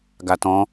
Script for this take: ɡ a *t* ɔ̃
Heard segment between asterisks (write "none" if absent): t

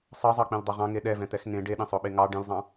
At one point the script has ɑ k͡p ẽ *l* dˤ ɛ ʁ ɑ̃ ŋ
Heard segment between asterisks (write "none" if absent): l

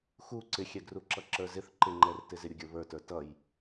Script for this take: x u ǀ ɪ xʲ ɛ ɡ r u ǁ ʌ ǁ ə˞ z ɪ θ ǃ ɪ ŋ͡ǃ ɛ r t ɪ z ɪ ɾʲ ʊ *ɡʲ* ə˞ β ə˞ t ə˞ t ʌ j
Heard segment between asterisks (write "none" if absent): ɡʲ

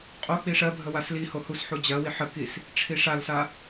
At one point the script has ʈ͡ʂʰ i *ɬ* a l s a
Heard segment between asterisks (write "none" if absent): ʂ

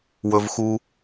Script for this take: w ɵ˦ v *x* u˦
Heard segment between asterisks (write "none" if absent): x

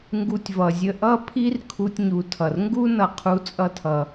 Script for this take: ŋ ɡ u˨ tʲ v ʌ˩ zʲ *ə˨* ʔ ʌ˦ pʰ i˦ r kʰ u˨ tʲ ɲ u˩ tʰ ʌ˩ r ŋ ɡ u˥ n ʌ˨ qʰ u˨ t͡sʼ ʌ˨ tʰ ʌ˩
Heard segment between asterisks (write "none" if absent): ə˨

